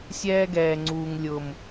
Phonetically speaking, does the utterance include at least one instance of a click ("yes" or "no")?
yes